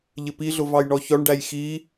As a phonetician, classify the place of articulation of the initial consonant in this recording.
palatal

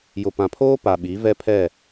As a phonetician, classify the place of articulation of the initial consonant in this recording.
palatal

